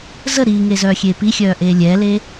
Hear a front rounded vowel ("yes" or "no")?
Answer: yes